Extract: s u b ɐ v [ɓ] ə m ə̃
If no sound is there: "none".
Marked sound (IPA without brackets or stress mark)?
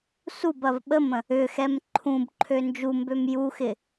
ɓ